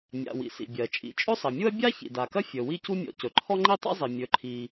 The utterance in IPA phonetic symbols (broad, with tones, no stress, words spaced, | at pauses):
mʲa̰˩ wḭ˩sḭ˩bʲɜ˩ t͡ʃʼḭ˩ t͡ʃʼɵ˥sˤɐ˩mʲu˥ɐ̯ bʲa˥ çḭ˩da˩kɐ˥ fʲɵ˩ wi˥cu˥mʲɔ̰˩ cɵ˩ǃʰɔ˥ ŋ͡ǃi˥tˤḭ˥zˤi˩ mʲɵ˩ǃʰi˩